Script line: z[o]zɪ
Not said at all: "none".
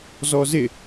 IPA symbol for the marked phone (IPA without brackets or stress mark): ɔ